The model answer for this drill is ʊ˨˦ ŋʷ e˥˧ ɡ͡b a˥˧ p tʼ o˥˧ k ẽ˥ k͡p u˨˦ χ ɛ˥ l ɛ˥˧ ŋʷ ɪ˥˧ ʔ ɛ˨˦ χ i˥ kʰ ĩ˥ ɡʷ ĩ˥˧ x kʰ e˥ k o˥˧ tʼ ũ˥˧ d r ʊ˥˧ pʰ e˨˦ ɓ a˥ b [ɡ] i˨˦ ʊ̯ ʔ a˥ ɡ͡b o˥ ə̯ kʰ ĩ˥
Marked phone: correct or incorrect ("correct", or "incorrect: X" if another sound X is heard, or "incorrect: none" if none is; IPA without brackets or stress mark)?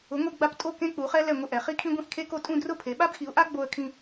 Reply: incorrect: x